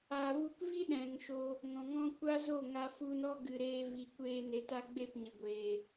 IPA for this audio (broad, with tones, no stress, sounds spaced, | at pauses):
aː˨ v u˧ k v i˦ ɗ ɛ̃˨ ŋ ʃ o˧ | ŋ ɔ̃˨ ŋ ɔ̃˧ kʷ a˦ z o˦˨ ŋ a˧ f u˧ n ɔ˦ ɡ ɨ˨ ɾ eː˧ v i˨ kʷ eː˧ n e˨ t a˧ ɡ͡b e˦˨ p ɲ ə˨ ɡʷ eː˨